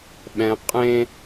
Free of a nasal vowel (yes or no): no